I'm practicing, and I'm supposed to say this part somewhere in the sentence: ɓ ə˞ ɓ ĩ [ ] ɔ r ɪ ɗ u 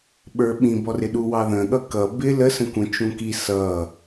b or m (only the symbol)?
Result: b